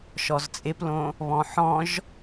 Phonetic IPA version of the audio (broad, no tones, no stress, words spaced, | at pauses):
ʃɔzt͡sʼɪplõ | βɔ̃ħɔ̃ʒ